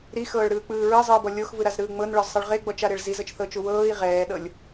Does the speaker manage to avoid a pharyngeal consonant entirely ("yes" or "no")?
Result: yes